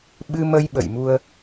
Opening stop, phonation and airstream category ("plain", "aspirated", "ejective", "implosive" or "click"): implosive